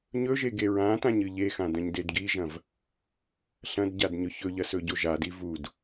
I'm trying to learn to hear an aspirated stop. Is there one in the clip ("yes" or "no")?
no